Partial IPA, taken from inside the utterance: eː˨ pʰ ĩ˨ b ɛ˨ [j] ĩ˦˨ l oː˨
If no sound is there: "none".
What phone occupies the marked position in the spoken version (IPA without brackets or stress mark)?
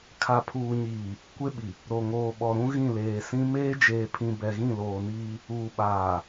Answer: ɣ